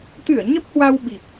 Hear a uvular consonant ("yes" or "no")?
no